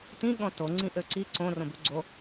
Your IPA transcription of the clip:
t ĩ ɠ ɔ̃ t o ŋ͡ǀ ĩ ʔ ø ǀ i ǀ õ r õ b ʉ ɡ͡ǀ o

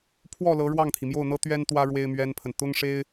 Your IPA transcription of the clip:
pʰ w ɔ˥˩ l ɤ˧˥ ɻ w ɑ˥˩ ŋ t̪ʰ i˩ m j o˥˩ ʊ̯ n̪ ɤ˥ t̪ ɥ ɛ˥ n t̪ w ä˥ ɻ w e˥ ɪ̯ m ɥ ɛ˥ n pʰ ə˨ n t̪ ʊ˥ ŋ ʂ e˥ ɪ̯

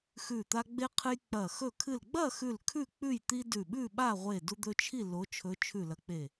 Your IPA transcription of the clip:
x ʉ˧˩ t̪ a˦ ɡ͡b e˦ qʰ ɨ˦ j k͡p ɐ˧˩ x ɵ˧˩ kʰ ɨ˧˩ l ɡ͡b ɐ˥˨ x ʉ˧˩ l kʰ ʉ˥˨ k͡p ʉ˥˨ j t̪ i˦ d ʉ˧˩ ɓ ʉ˥˨ ɓ a˥˨ ʁʷ e˧˩ d u˦ d̪ ɵ˦ t͡ʃʰ i˥˨ l o˨˦ t͡ʃʰ ɵ˨˦ t͡ʃʰ ʉ˧˩ l ɐ˨˦ k͡p e˧˩

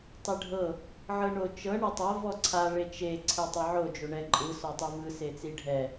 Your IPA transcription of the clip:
tˤ e ɖʱ ɤ | ʕ ɤ ɳ o t͡ʃ ɤ ɳ o tˤ a v ɔ ǀʰ a ɭ e t͡ʃ e ǀʰ ɛ tˤ ɛ ʕ o d͡ʒ o ɳ ɛ ǃʼ ɯ s ɔ tˤ ɯ v ɯ s e t͡s i ɖʱ ɛ

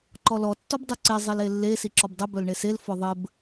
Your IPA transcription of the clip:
ǃ ɔ l ɔ tː ɔ b dˤ u ǀ e zˤ i l e lː e s i ǁ ɔ b dˤ ɘ b œ l ɳ e s e l f ɔ ðˤ ɘ b

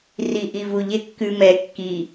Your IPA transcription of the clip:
r i ʔ i v u ʎ e kː ʉ m ɛ kː i

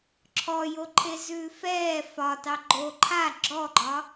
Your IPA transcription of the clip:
ǁʰ ɔ j o ǃʰ e z ʉː f ɛː f ɒ t ɑ ɡ͡ǃ o ǃʰ a ɡ͡ǁ ɔ ɡ͡ǃ ɒ

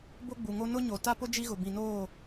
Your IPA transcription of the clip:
b o˦ ɡ͡b u˨ ŋ o˦ n ʊ˦ ɲ o˨ t a˦ p ʊ˦ d͡ʒ i˦ ɣ ʊ˨ b ĩ˨ n oː˦˨

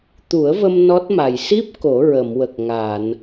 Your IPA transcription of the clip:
t̪ u˨˩˦ ə̯ v ə˧ m n ɔ˦˥ t̚ m a˨˩ j s i˦˥ p̚ k o˨˩˦ ɹ ə˨˩˨ m w ə˨˩ k̚ ŋ a˨˩˨ n

